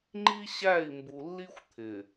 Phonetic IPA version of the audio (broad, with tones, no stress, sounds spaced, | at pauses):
ŋ͡ǃ i˦ ɕ æ˦˨ i̯ m b u˨ lː i˦ xʷ t̪ʰ ɪ˨